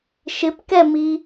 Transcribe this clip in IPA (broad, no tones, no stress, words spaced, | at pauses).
ʃɪpkɛmi